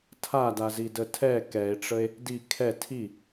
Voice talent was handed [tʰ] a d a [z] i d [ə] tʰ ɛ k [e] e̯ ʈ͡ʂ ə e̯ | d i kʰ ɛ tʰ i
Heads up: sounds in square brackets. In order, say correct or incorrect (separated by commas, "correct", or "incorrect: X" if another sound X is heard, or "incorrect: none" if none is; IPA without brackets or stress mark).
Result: correct, correct, correct, incorrect: ɛ